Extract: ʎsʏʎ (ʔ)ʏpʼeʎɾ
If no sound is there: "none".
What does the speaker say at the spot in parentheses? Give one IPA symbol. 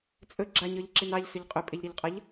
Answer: qʼ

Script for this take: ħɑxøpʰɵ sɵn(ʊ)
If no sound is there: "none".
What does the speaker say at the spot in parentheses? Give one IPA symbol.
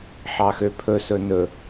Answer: ɵ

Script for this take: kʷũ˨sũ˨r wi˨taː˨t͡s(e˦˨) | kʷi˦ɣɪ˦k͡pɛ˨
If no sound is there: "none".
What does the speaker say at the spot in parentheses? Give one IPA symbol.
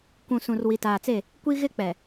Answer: e˦˨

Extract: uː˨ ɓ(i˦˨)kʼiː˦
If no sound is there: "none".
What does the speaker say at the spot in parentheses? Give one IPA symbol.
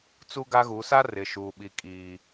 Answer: i˦˨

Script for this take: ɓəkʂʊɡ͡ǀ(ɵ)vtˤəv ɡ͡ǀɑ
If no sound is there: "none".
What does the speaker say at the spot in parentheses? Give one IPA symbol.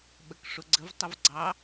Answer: ə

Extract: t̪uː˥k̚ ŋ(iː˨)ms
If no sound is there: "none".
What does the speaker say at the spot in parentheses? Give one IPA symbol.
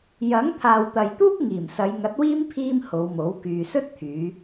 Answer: iː˨˩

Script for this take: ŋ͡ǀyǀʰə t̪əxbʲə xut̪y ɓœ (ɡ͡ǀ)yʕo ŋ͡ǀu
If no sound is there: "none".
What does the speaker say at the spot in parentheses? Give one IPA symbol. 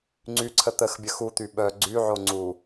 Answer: ɡ͡ǀ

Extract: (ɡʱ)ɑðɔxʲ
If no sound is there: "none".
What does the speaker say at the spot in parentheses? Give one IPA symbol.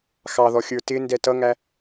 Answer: x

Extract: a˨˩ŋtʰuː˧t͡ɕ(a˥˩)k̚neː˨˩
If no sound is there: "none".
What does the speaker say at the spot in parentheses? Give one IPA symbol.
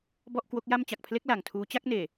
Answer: a˥˩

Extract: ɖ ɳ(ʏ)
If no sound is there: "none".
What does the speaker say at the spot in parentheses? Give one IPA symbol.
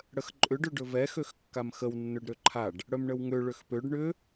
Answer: ʏ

